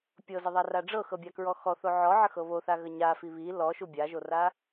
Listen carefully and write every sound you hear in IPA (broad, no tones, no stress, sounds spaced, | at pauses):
pʲ ɤ z ə ðˤ a r a ɖ͡ʐ ɤ x ɤ bʲ a k ɹ ɔ x ɔ θ o ʕ ɔ ʕ ə x ɤ β o θ a ɣ ə ɲ a f i β i l ɔ ʃ u bʲ a ʒ o r a